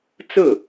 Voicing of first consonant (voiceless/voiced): voiceless